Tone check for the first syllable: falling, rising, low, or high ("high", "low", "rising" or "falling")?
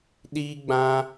high